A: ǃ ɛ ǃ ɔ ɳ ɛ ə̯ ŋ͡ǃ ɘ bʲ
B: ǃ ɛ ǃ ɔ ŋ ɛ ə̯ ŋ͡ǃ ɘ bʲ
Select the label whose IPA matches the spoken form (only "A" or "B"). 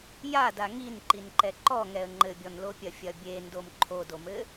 B